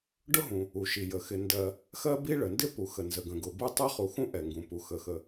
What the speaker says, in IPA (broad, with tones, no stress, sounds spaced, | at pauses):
ɖ ʊ˥ ɦ ũ˩ | u˩ ʃ i˩ j ə˩ x ɪ˩ n d ɜ˩ | x ɜ˥ b i˥ ɭ ə˩ n d ɪ˥ p u˩ x ə˩ n z ə˩ ɡ ə̃˩ ɡ ʊ˩ b u˥ tˤ ɜ˥ χ u˩ x ũ˥ ʔ ɛ˩ ŋ ɡ ũ˩ p u˩ x ə˩ x ə˩